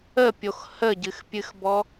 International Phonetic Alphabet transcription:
əpʲox həɟɨxpʲɨxbɔ

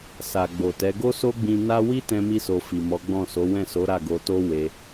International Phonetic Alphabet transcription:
sa˨ɡ͡bo˨tɛ˨˦ ɡo˦so˦ɡ͡bĩ˧ na˦ wi˦tɛ̃˧mi˧so˨ fi˨mɔ˨˦ɡ͡bɔ̃˦˨ so˨˦ wɛ̃˦˨so˨˦ ɾa˦˨ɡo˧to˦ we˧

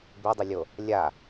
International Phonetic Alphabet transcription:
bedˤɪlʲo | lʲa

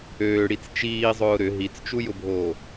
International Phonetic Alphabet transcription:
øːɽit͡s t͡ʃiːzˤʊː ɾʏ ɦit͡st͡ʃujʊbʱoː

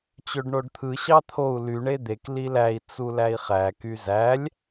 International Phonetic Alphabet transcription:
t͡ɕøɖɳoɖt̪ʰɯ ɕɑt̪ʰou̯ ly ɳed̪ek lilæi̯ t͡sulæi̯χæ kyzælʲ

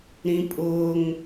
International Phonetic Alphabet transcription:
ɾĩpʼʊːŋ

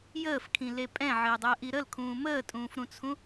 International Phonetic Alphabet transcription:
jəːfkʰĩle pʼɛ̃ʕɘːdˤəːʔi ɾəlkʰũː məːtʼũːfɾũt͡sʰũ

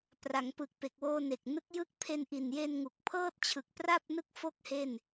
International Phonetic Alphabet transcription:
pra˩˦ŋpɯ˨˩k̚pe˨˩k̚woː˧ ne˨˩k̚nɯ˦˥k̚jɯ˥˩k̚ pʰe˧nʔi˨˩nje˧n ŋu˨˩k̚pʰɤː˥˩t̚t͡ɕʰɯ˨˩k̚pra˥˩p̚ nɯ˥˩k̚fo˥˩k̚ he˥˩n

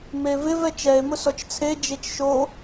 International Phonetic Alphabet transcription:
mevɪv ɛt͡ʃɛe̯ mʊsɔt͡ʃt͡sʰe d͡ʒet͡ʃʃo

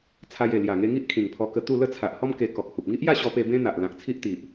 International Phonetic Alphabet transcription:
t͡sʰa˧je˨˩ lja˨˩ŋe˧ŋi˦ʔ kʰĩ˨˩ŋpʰɔ˧kə˧ t̪u˥˧ lə˥˧t͡sʰa˨ʔ hɔ˦m ke˧ kɔ˨k̚hu˨p̚ ŋi˦ʔja˥˧ ɕɔ˧pe˧ bẽ˦n̪a˨ʔ lã˨k̚t͡sʰi˦ʔt̪i˨ʔ

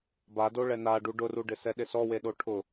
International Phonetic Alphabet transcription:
bado ɭɛnaɖu ɖʊruɖɪsɛ ɗɪsɔwe ɗoʈʰʊ

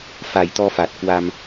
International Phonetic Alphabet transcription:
fa˨˩jt̪ɔ˧fa˨˩t̚ kwa˧m

